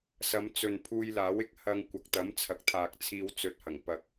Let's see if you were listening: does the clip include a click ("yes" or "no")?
no